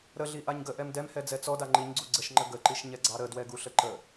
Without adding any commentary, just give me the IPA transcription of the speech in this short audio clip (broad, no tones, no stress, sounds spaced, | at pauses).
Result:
ɾ ə ɮ i ʔ a ɲ ɡ ə ʔ ɛ m d ɛ m h ɛ d͡z ɛ t͡s ɔ d a ŋ͡ǃ i ɲ ɡ͡ǀ u ɡ͡ǀ ə ʃ ŋ͡ǃ ə ɡ ə ǃ i ʃ ɲ ɛ ɡ͡ǀ ɑ ɾ ə d w ɛ ɡ u ɬ ə ǃ ə